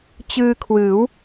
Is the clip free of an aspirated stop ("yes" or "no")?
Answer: no